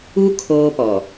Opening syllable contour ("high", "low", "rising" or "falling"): high